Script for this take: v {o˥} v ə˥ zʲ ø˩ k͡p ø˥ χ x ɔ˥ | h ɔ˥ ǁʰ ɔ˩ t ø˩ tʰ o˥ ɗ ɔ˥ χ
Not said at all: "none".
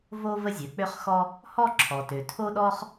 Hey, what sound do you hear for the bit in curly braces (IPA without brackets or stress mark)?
o˥